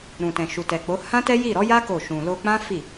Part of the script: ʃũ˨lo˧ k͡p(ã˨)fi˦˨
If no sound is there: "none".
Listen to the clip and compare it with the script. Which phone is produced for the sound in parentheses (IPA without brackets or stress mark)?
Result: ã˦